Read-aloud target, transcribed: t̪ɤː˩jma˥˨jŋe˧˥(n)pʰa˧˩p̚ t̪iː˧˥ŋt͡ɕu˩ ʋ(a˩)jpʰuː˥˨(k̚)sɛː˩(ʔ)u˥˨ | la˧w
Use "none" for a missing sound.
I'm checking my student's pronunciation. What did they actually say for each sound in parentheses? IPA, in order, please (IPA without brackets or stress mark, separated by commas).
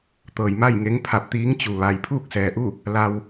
ŋ, aː˩, k̚, ʔ